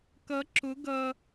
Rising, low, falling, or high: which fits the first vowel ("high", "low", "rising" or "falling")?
rising